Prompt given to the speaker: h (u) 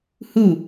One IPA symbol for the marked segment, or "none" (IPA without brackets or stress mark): u